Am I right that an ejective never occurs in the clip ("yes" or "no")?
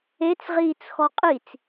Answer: no